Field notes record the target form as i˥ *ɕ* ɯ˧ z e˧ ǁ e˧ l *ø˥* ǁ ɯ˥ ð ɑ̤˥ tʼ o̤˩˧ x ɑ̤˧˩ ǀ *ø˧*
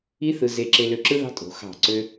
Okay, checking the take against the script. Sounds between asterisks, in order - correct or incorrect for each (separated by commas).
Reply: incorrect, incorrect, correct